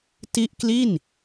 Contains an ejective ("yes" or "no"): no